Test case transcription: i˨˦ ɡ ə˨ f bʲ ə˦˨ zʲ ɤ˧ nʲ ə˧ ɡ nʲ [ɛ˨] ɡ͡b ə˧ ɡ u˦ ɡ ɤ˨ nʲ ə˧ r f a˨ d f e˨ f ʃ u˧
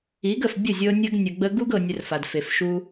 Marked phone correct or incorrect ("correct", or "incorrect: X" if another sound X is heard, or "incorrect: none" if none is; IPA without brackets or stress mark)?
incorrect: ə˨